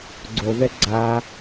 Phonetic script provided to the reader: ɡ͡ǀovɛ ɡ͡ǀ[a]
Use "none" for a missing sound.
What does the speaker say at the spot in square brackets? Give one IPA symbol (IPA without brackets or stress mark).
a